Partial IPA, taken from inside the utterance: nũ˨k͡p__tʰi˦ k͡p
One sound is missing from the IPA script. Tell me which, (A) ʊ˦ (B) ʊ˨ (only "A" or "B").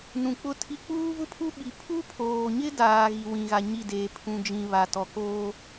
A